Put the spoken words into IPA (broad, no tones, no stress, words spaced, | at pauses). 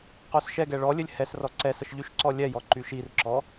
qosʃɛɡɛ ɭɔ lʲɘlʲhɛsrɔ ǀɛsəʃ ʎyʃǀɔlʲɛjɔ ǃyʃirǁɔ